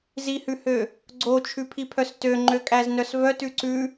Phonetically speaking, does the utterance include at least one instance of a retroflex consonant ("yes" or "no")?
no